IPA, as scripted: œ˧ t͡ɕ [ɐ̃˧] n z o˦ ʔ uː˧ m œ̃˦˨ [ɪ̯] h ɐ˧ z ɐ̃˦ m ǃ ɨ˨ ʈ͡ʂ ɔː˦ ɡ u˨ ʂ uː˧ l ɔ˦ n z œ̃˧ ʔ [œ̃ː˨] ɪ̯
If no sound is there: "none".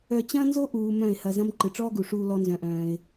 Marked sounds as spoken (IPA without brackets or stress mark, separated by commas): ɐ̃˦, ɪ̯, œ̃ː˧